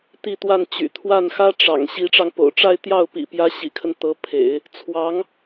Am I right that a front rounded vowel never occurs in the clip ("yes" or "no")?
no